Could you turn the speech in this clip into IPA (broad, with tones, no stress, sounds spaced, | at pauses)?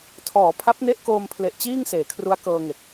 tʰ ɔː˩˦ pʰ a˦˥ p̚ n e˦˥ ʔ k oː˧ m pʰ l e˨˩ ʔ t͡ɕ iː˥˩ ŋ s eː˩˦ kʰ r u˦˥ a̯ k ɤː˧ ŋ e˨˩ k̚